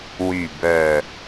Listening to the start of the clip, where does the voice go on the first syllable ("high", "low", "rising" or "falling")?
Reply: low